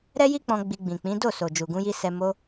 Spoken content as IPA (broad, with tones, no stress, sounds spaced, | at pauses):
ɾ ɛ˦ j i˦ k͡p ɔ̃˧ ɡ͡b i˧ ɡ͡b ĩ˨ k͡p ĩ˨˦ d o˦˨ s o˨ d͡ʒ u˨ ɡ ũ˧ j i˧ s ɛ˨ m o˧